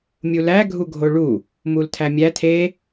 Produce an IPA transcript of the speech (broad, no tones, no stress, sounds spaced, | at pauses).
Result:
mʲ u l æ ɡʱ u ɡʱ o ɭ u | m u l tʰ æ mʲ æ tʰ e